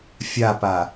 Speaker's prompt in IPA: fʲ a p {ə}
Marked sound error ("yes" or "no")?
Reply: yes